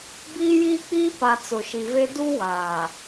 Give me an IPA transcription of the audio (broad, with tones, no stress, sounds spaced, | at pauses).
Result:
b iː˦ j iː˦ k͡p iː˦ p a˨ t͡s ʊ˨ ʃ i˨ v e˦ d u˦ w aː˨